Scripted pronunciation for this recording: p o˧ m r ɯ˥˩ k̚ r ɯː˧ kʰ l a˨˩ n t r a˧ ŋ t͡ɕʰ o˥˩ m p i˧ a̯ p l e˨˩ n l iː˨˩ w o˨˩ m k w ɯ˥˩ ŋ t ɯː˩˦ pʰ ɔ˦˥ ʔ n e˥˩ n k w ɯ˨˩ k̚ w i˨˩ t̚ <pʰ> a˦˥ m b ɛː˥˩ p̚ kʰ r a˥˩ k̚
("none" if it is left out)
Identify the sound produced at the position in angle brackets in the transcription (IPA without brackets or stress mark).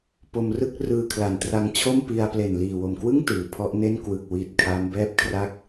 kʰ